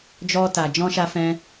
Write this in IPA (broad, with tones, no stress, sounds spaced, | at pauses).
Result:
d͡ʒ ɔ˧ t a˨ d͡ʒ ɔ̃˧ ʃ a˧ f ɛ̃˧